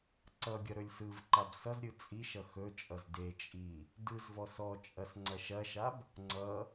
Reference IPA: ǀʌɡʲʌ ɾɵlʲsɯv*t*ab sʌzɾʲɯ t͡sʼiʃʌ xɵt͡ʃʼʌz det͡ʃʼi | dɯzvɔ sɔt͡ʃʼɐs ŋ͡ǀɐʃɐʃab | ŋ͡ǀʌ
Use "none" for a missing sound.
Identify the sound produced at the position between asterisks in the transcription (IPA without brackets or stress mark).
ǃ